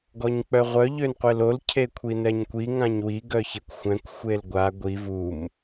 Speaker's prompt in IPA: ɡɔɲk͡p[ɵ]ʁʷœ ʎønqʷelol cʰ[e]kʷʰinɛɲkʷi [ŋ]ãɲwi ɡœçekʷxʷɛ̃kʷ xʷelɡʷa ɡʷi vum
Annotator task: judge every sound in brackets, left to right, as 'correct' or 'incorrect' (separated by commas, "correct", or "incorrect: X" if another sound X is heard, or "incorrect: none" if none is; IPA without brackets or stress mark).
incorrect: œ, correct, correct